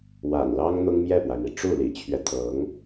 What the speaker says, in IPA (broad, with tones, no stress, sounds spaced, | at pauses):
w a̰˨˩ n l ɑ˥ ŋ n̪ ʊ˥ ŋ m j ɛ˥˩ p w a˩ ɪ̯ m i˩ ʈ͡ʂ u˥˩ l ḭ˨˩ t͡ɕʰ ɥ ɛ˦ t̪ʰ ɤ˧˥ ŋ